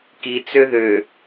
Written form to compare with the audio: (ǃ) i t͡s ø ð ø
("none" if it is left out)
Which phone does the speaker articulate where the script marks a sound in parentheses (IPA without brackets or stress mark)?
k